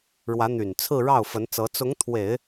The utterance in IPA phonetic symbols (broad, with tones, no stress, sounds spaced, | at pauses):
ɻ w ä˧˥ n̪ y˨˩ n t͡sʰ ɹ̩˥˧ ɻ ɑ˥˩ ʊ̯ f ə˧˥ n t͡s ɤ˧˥ t͡s ʊ˧˥ ŋ t̪ʰ w e˨˩˦ ɪ̯